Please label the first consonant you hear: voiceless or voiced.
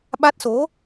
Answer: voiced